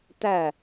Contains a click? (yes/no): no